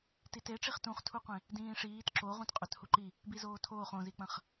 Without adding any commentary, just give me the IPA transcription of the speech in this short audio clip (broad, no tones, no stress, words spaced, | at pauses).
titeʈ͡ʂiχ tũχtʰuqʷẽ | dĩːʂiːt ǁo ʁũtqʼɵthuǃi | bizoːtʰoːχ õzik͡pɐ̃χ